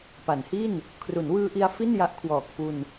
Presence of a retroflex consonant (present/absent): absent